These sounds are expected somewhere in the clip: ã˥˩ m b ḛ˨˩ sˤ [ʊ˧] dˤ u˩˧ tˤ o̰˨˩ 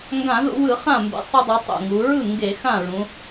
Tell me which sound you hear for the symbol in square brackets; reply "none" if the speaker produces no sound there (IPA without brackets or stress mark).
u˧